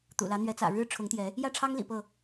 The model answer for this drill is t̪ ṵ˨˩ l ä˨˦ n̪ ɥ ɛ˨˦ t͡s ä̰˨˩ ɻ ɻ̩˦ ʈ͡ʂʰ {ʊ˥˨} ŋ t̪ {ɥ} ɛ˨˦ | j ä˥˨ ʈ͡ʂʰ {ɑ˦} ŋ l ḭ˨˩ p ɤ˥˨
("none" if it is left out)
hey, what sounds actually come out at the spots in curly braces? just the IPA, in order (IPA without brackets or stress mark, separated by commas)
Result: ʊ˨˦, j, ɑ˦